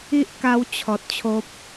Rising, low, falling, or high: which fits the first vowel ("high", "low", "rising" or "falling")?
high